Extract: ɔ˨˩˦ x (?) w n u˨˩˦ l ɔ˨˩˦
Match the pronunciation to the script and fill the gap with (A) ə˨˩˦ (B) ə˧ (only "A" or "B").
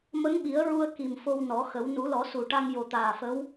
A